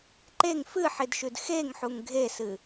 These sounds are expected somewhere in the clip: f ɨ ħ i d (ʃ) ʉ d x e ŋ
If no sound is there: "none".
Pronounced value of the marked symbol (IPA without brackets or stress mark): ʃ